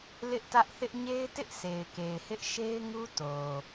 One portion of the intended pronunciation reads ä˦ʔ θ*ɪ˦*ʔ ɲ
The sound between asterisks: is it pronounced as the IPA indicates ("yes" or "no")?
yes